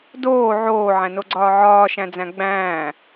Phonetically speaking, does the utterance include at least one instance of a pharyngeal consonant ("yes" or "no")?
yes